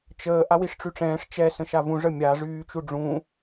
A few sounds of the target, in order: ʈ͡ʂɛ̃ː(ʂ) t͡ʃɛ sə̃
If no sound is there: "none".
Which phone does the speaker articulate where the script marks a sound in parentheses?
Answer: ʂ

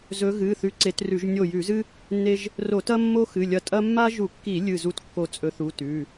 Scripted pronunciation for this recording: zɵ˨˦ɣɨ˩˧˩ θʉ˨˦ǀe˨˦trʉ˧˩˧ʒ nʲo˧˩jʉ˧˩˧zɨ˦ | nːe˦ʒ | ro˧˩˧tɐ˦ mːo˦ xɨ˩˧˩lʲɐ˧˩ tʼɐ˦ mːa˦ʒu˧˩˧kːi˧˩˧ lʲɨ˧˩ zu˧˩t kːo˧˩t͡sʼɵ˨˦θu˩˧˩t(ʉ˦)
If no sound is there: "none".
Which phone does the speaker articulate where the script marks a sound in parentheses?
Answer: ʉ˩˧˩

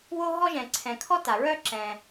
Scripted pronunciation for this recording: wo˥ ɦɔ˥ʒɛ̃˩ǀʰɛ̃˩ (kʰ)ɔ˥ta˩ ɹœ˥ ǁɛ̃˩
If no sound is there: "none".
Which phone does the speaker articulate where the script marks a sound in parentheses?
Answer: kʰ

